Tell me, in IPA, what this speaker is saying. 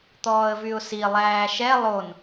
t̪ ɔː ə̯ v y ʊ̯ s i lˠ æː ʃ ɛ lˠ o n

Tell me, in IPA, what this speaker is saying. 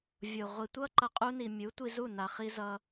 vʲ o˨ ʁʷ i˨ tʷ ʌ˦ ǃ ʌ˨ qʼ u˧ n i˨ mʲ u˨˦ tʷ i˧ z u˦˨ n a˨ χ i˧ z ʌ˧

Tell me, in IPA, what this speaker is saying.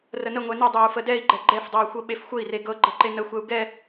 r ə n ə ŋʷ ɛ n ə dˤ ɛ u̯ f ə d ɛ i̯ ɡ͡ǃ ɛ ɡ͡ǃ ɛ f dˤ ɤ u̯ xʷ ɤ ɓ e f xʷ ə i̯ r e ɡ ɤ ɡ͡ǃ ə ǃ e n ə xʷ ɛ u̯ ɡ ɛ

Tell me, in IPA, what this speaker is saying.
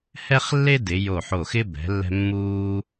h ɛ˥ χ lː e˥ d ɪ˩˧ j o˧˩ ħ o˧˩ x ɪ˥ b ɛ̤˩˧ lː ɛ̤˧ mː uː˧

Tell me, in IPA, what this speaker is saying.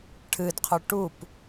ʈʰ ɨ d qʰ ɵ ʈ u p

